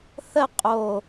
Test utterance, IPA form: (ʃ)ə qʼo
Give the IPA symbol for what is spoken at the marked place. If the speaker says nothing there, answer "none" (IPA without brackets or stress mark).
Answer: θ